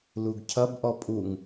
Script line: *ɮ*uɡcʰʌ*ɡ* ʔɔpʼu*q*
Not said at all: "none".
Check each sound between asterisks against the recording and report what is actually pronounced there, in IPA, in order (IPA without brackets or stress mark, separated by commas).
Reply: l, b, ŋ